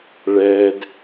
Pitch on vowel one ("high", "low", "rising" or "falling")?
high